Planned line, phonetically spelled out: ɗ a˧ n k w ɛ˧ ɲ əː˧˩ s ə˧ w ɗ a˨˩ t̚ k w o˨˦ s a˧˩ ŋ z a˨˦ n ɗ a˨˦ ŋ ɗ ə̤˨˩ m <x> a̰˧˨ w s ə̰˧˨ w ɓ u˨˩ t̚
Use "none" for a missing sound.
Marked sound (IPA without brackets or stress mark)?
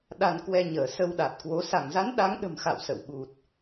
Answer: x